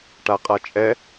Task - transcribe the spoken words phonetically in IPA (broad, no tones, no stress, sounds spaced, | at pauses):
ʈ a qʼ a t͡ʃʼ ɛ